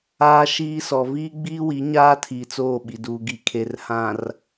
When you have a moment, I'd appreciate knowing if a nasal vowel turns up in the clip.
yes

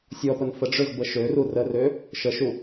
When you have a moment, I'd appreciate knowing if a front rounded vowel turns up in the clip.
yes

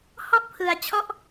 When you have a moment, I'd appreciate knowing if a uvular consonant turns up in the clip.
no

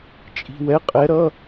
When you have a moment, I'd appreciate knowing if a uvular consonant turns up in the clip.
yes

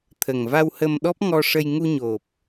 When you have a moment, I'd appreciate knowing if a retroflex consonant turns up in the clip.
yes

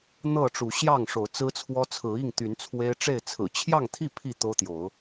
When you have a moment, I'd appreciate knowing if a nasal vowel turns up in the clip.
no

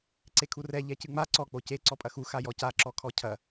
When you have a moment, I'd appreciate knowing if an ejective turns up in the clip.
yes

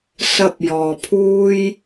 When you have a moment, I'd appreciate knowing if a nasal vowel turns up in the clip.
no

